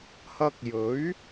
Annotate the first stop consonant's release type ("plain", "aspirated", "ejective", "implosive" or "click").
plain